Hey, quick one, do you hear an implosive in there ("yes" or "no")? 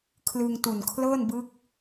no